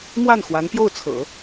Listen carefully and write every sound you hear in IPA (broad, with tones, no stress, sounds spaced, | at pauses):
m w a˥˩ n x w a˧˥ n p j o˥˩ ʊ̯ t͡sʰ ɤ̰˨˩˦